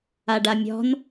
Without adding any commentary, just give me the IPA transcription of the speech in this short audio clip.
a ɖ a mʲ ɔ̤ n

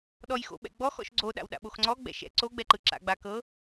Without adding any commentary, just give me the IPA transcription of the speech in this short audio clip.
ɗ ɔ j x o̰ ɓ ɛ̰ ɡ͡b ɔ x ɔ̰ ʃ ɡ͡ǀ o ɗ a̰ w ɗ a̰ ɓ o x ŋ͡ǀ ɔ ɡ͡b ɛ̰ ʃ ɛ̰ ǀ o ɡ͡b ɛ ǃ ɯ ǁ a̰ ɡ͡b a k ɤ

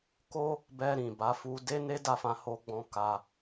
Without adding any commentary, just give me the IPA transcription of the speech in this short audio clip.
k o˦ | b ɛ˧ ɾ ĩ˨ b a˨˦ f u˧ d e˦ n e˦ d a˦˨ f ã˧ h o˦ ɡ͡b ɔ̃˦ k a˧

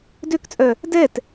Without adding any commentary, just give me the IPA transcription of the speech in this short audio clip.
d ø k t͡sʼ œ | d ɛ t

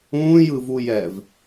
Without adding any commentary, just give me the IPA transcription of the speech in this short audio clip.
ũː j ɯ v u j ɛ v

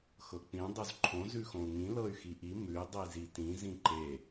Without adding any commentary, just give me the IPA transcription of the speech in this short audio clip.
x ɤ k͡p ĩ dˤ ʉ z ǃʰ õ z ʉ x õ u̯ ŋ ĩ l ɤ y̯ x i ʔ i m ʉ i̯ dˤ i z i t ĩ z ĩ ǃ e

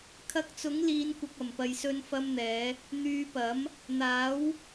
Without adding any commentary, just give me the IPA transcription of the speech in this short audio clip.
kʰ ɐ˧ k̚ t͡s ʊ˨˥ ŋ l iː˨˧ n kʷ ɐ˨ k̚ ɐ˨˩ m p ɐ˨ j s ɵ˧ n f ɐ˧ m n̪ ɛː˨˧ | n̪ yː˨˧ p ɐ˨˥ m | n̪ aː˨˥ w

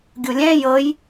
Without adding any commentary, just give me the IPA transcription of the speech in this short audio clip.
ɡʲ u lʲ ɛ̃ j ɤ j

